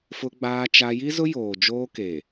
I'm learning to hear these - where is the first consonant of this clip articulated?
lips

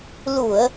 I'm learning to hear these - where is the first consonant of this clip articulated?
tongue tip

